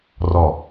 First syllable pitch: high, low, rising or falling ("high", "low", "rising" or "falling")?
low